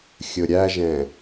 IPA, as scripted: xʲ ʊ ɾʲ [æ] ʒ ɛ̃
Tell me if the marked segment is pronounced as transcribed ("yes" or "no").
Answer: yes